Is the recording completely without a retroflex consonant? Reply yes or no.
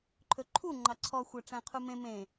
no